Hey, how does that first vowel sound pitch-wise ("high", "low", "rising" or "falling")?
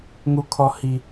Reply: low